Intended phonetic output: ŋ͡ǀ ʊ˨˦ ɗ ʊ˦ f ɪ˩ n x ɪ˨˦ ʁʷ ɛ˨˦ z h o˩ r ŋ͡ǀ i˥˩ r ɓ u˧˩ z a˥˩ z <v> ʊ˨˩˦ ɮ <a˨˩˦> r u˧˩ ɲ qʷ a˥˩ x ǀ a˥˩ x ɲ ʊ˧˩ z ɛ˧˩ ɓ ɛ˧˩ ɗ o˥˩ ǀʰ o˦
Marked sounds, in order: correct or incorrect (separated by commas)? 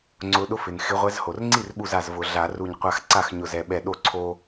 correct, correct